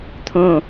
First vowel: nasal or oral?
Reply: nasal